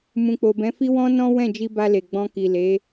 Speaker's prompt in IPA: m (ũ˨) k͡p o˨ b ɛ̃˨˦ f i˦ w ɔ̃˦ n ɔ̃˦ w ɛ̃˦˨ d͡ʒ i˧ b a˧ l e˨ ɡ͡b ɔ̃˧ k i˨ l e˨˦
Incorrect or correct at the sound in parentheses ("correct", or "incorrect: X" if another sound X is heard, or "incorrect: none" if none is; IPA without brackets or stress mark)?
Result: correct